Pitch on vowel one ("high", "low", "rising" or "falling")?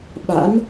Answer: rising